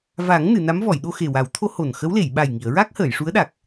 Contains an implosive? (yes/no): yes